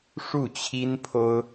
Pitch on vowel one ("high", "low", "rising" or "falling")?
falling